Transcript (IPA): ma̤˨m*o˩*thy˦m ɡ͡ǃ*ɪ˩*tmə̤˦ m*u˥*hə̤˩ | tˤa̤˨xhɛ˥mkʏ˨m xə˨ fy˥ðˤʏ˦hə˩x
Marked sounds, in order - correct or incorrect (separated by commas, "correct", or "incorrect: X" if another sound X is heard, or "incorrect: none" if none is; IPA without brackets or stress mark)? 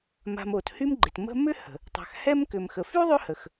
correct, correct, incorrect: ʏ˥